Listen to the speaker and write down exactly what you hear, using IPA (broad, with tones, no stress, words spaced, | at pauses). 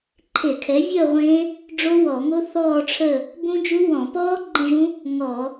ǃʰe˧˩˧kʰɛ˩˥vʲəː˥˨ ʁʷẽ˦˥ | ɖ͡ʐo˦˥wɔ˧˩˧ŋo˦˥ θɔː˥˨ʈ͡ʂʰə˥˨ | bũ˦˥d͡ʒu˦˥ wɔ̃˧˩˧pɔː˦˥ ɡ͡ǃə̃˥˨ʒũ˦˥ | ŋɔ˧˩˧